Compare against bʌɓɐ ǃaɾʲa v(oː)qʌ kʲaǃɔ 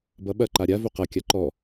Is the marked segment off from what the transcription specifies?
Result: yes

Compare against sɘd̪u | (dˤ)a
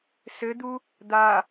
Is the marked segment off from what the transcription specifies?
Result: yes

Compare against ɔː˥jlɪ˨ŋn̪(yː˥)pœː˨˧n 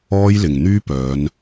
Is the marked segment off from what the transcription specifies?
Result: no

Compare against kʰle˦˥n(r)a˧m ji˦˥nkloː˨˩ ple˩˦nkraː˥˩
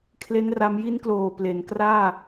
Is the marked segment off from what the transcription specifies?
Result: no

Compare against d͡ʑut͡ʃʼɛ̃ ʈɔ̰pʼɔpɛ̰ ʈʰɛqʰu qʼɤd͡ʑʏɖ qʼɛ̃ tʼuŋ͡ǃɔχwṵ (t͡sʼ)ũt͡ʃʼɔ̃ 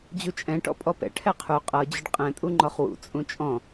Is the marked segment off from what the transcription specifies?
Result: no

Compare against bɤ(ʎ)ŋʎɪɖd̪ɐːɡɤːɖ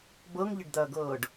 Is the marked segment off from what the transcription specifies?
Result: yes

